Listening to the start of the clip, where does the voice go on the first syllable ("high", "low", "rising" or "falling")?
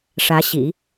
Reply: rising